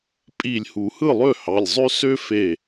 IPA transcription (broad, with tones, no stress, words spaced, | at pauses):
pʼi˧˩lʲhu˨˩˦ hɯ˥˩lˠø˥˩hɑ˩˧˩lʲzˤø˦ sø˦fe˧˩